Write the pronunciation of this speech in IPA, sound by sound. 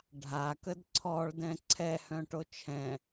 ɖʱ a k ə d ǀʰ ɔ ɭ d ɛ̃ ǀʰ ɛ h œ̃ ʈ o t͡ʃʰ ɛ̃

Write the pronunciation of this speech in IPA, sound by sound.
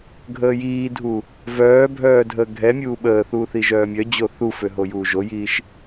ɡʱ əː j iː dʱ u | v œː bʱ œː dʱ əː ɡʱ ɛ mʲ uː ɓ əː θ uː θ i ʒ œː mʲ œ d͡ʑ o θ u f ø ɦ o j uː ʒ o j iː ʃ

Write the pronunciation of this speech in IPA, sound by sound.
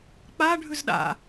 k͡p a ɖʱ ʉ z ɗ a̰

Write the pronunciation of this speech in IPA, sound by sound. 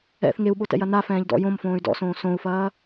ɛ̰ θ ŋ e u̯ ɓ o t ɛ̰ j ɐ n a f ɛ̃ː ʎ d ɔ̰ j õ m f õː y̯ d ɔ̰ s õː s õ u̯ f ɐː

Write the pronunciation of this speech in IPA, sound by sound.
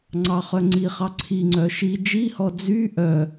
ŋ͡ǀ ɑ χ œ ŋ͡ǀ i χ ɑ ǀʰ i ŋ͡ǀ œ ʃ i d͡ʒ i h ɔ d͡z y ʔ œ

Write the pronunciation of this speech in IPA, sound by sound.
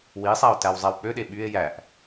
w i sˤ æ o̯ t æ w zˤ æ w k͡p ø ɗ e ɓ y e̯ j æ ʔ

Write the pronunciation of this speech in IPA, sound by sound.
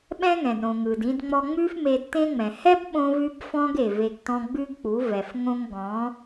ɓ ɛ̃˦ ŋ ɛ̃˨ d ɾ õ˨ ŋ ɯ˨ d ĩ˧ d ŋ͡m ɔ˧ ŋ͡m ʉ˦ f m e˧ d t ẽ˦ ŋ͡m ɛ̃˨ h ɛ˦ b ɓ õ˧ v ʉ˧ b f ɔ̃˧ ɡ e˨ v e˧ ɡ t ɔ̃˦ ɡ͡b ʉ˦ ɡ k͡p u˨˦ v ɛ˨ f ŋ õ˦ ŋ ɡ ɔ̃˨˦

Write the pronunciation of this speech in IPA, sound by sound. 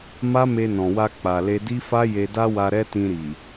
m a˦ m e˧ n ɔ̃˨ w a˧ k͡p a˨ l e˧ d i˦ f a˦ j e˧ d a˦ w a˧ ɾ ɛ˦ t ĩ˧ ɾ i˨

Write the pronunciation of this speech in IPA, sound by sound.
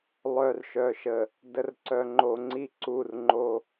lˠ œ˨ r ʃ œ˨ ʃ ə˨ | d ə˨ r ǀ œ˨ ŋ͡ǃ o˨ ŋ͡ǀ i˦˨ ǀ u˦˨ r ŋ͡ǃ o˦

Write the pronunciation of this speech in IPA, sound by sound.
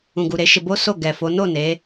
ũ˨ ɡ u˨ ɾ e˨˦ ʃ e˧ b o˦ s o˦˨ ɡ ɛ˨ f o˨˦ n o˦˨ n e˨˦

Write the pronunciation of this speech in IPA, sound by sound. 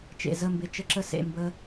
t͡ʃ ḛ˨ z ə˦˨ m b ɪ˧ t͡ʃ ə˧ ǁ ə˧ s ḛ˨ m b ə˧

